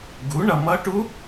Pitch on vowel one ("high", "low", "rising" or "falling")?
rising